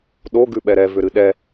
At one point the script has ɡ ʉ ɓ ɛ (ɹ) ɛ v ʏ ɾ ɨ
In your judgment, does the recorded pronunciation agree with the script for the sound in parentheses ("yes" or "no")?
no